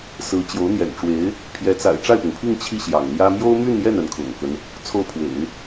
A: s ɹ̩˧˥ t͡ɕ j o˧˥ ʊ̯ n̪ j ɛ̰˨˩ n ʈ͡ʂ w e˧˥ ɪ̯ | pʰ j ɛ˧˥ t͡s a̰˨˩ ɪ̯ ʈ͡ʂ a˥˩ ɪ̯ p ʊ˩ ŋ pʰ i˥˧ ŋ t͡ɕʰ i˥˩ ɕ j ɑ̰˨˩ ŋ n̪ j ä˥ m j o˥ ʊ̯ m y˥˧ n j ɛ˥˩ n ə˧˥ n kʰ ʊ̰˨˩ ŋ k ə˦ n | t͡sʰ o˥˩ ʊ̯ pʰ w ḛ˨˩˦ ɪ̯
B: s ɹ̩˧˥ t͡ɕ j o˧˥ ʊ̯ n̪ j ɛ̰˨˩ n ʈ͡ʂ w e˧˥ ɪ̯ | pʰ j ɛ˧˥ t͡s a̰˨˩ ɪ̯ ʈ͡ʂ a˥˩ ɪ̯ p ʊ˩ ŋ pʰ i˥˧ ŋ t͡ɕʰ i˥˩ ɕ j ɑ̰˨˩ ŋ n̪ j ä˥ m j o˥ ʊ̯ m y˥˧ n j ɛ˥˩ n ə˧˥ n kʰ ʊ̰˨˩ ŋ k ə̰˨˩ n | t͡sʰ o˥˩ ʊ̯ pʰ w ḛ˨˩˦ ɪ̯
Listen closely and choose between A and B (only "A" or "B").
A